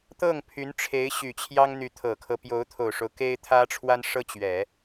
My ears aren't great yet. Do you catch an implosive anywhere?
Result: no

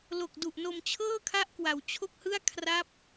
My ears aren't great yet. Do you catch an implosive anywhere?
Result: no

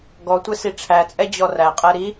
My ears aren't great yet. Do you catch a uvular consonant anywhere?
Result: yes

